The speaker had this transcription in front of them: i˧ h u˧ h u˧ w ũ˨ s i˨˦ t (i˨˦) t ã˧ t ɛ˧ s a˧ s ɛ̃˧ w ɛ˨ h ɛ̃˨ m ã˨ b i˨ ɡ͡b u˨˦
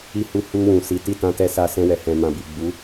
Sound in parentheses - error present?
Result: yes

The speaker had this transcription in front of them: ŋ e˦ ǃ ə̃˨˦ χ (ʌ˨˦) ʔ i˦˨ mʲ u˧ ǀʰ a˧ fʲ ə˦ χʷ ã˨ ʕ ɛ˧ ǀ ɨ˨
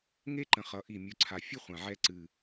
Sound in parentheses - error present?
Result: no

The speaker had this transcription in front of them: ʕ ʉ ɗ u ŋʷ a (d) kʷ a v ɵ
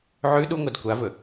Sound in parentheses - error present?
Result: no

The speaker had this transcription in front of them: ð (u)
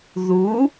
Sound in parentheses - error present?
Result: no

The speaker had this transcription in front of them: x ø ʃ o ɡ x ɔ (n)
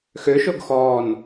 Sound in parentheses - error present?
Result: no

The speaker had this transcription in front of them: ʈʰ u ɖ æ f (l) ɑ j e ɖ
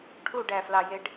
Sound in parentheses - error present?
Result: no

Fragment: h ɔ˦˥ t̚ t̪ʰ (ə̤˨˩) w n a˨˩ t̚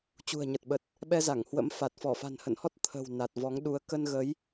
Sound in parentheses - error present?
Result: no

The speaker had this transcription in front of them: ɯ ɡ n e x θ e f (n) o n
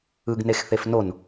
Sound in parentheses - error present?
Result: no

